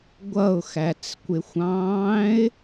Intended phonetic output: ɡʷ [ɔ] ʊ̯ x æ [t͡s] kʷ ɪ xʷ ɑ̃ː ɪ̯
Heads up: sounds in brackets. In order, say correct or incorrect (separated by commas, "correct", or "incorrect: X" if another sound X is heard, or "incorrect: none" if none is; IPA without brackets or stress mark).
incorrect: ʌ, correct